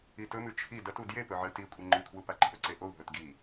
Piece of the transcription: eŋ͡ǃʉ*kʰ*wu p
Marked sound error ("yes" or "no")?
no